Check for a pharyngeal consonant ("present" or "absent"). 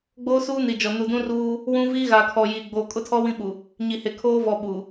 absent